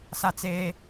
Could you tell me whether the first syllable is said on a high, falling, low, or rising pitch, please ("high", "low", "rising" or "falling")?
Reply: high